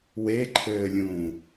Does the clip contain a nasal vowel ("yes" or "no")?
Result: yes